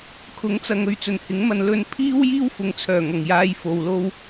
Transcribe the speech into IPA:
kʰ ʊ˨˥ ŋ t͡s ɐ˨ ŋ ɵ˧ ɥ t͡s ɵ˨˩ n h ɪ˨˥ ŋ m ɐ˧ n l ɵ˧ n pʰ iː˥ w j iː˥ w f ʊ˨˧ ŋ t͡sʰ œː˨˩ ŋ ɐ˨˩ ŋ j aː˧ j f o˨ w l o˧ w

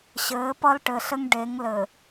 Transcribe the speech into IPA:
ɕ ɘː˨˦ p ʌ˦ l ʈ ɘ˨ ɬ ɘ˦ ŋ ɖ e˨˦ ŋ l ɘ˨

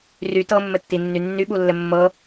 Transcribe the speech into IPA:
r y t ɤ mː ɘ tː i nː y nː y ɓ u lː ɘ mː ɤ

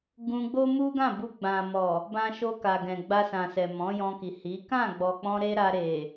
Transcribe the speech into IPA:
ɡ ũ˧ ɡ͡b o˦ m u˦ ɡ ã˦˨ b u˧ ɡ͡b ã˨ m ɔ˨ | b ã˧ ʃ o˧ k a˨ ɡ ɛ̃˨ ɡ͡b a˧ s ã˨ s ɛ˨ m ɔ̃˨˦ j ɔ̃˧ k i˨ h i˨˦ k ã˦˨ ɡ͡b ɔ˨ k͡p ɔ̃˧ ɾ e˦ ɾ a˧ ɾ e˨

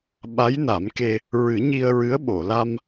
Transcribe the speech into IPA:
ɓ a˧˥ j n a˨˩˦ m k e˧ | ɹ ɨ˨˩˦ ɲ i˧ ə̯ ɹ ɨ˧˥ ə̯ ɓ o˨˩˨ l a˧ m

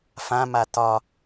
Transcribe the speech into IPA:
f ã m a t ɒ

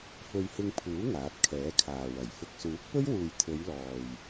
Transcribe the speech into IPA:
f ɵ˧ ɥ h ɪ˧ ŋ pʰ uː˨˥ ŋ aː˨˥ t̚ kʰ ɛː˨˥ kʰ aː˨ w ɐ˨˩ j f ʊ˨ k̚ s uː˨˥ k̚ p ɵ˥ ɥ w uː˨ j t̪ʰ ɵ˨˧ ɥ l ɔː˨ j

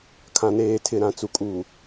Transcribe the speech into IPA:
kʰ ã˨ n eː˨ tʰ ɪ˨ ɾ ã˨ t͡s u˨ kʼ uː˨

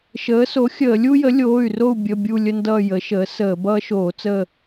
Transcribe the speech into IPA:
ʃ əː˩˥ s o˩˥ xʲ əː˧˩˧ lʲ u˦ j ə˩˥ lʲ oː˩˧˩ y̯ r o˦˨ u̯ bʲ ə˩˧˩ bʲ u˦˨ lʲ ə˦ n d ʌː˦˨ j ə˩˥ ʃ əː˩˥ s əː˧˩˧ b ʌː˦ ʃ oː˧˩˧ t͡s ə˦˨

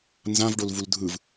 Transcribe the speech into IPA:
n z ã v ɖ o l v u l dʱ ɯ v

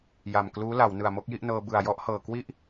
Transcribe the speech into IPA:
j a˨˩ m k l uː˦˥ l a˩˦ w n ɯ˨˩ a̯ m o˥˩ k̚ j i˥˩ ʔ n ɤː˧ b ɯ˨˩ a̯ j ɔ˥˩ ʔ h ɤː˨˩ k w i˥˩ ʔ

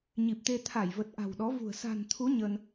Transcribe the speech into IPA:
ɲ i˨˩ p̚ t̪ e˧ t̪ʰ a˧˩ j v ə˨˩ t̚ ʔ a̤˨˩ w ɗ ɔ˨˦ v ṳ˨˩ ə̯ s a̤˨˩ n t̪ʰ u˨˦ ɲ ə˧ n

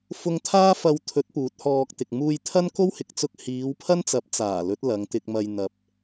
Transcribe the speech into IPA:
f ʊ˧ ŋ t̪ʰ aː˥ f ɐ˧ w t̪ʰ ɵ˨˥ t̚ p uː˨˥ t̚ h ɔː˧ k̚ t̪ ɪ˨ k̚ m uː˧ j t̪ʰ ɐ˥ n k o˥ w h ɪ˨ k̚ t͡s ʊ˧ k̚ h iː˨˧ w pʰ ɐ˥ n t͡s ɐ˨˥ p̚ t͡s aː˨˩ l ɵ˨˥ t̚ l ɐ˨˧ ŋ t̪ ɪ˧ k̚ m ɐ˧ j n̪ ɐ˨ p̚

